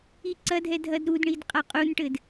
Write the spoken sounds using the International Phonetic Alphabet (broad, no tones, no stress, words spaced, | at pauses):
iǀɐdʱɛ dʱɐdɾudɳid qʼaqʼunʈɘd